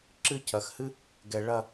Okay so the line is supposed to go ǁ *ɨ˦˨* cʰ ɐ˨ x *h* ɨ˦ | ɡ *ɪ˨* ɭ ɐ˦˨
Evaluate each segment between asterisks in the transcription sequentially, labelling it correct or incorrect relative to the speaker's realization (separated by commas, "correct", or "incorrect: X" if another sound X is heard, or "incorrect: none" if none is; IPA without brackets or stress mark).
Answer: correct, correct, incorrect: ɛ˨